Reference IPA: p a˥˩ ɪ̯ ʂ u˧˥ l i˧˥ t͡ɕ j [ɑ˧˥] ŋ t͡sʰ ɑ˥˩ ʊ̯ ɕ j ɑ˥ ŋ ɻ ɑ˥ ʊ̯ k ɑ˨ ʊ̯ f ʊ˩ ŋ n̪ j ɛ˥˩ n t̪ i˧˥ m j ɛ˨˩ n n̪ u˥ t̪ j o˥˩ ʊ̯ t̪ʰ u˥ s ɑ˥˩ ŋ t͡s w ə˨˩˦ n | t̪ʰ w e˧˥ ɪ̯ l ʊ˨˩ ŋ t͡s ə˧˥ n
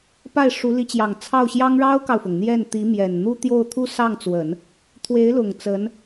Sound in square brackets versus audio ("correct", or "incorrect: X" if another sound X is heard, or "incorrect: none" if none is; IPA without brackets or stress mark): incorrect: ɑ˨˩